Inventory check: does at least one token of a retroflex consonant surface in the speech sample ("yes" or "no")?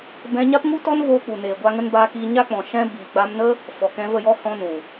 no